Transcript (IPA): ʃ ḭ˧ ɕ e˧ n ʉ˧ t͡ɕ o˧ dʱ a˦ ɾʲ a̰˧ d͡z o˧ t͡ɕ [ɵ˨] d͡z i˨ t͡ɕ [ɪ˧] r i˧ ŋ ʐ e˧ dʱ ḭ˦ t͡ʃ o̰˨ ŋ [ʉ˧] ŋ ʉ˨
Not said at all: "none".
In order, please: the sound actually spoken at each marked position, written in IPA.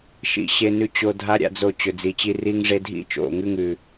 ɵ˨, i˧, ʉ˧

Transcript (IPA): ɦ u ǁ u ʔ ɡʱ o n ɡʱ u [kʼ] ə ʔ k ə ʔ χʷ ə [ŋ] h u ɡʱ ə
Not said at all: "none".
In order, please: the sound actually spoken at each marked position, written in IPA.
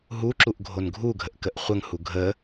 ɡʱ, ŋ

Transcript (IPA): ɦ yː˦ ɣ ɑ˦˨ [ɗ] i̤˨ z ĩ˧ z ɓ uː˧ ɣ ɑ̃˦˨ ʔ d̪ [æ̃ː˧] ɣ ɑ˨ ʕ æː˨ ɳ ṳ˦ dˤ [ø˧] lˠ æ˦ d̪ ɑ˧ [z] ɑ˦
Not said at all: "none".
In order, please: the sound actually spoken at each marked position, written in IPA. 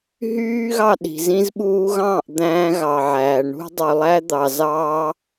ɗ, æ̃ː˧, ø˧, z

